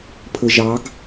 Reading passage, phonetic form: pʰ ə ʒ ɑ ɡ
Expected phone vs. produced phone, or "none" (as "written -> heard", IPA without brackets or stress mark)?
none